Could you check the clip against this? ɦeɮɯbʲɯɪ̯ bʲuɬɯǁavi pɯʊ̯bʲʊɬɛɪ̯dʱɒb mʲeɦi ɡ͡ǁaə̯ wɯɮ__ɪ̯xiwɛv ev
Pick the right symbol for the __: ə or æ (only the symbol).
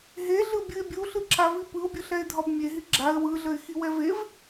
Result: ə